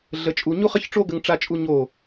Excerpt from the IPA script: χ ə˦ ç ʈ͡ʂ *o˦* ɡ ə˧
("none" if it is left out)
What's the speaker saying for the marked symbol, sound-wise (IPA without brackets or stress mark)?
o˦